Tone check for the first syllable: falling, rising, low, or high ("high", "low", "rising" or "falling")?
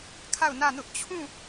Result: falling